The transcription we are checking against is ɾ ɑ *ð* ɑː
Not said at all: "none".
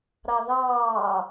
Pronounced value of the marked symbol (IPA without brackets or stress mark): ð